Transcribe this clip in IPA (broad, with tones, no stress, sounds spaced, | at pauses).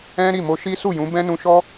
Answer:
ɛ̃˦ ɾ i˦˨ m o˧ ʃ i˦ s u˦˨ j ũ˨˦ b ɛ̃˦ n ũ˧ ʃ ɔ˦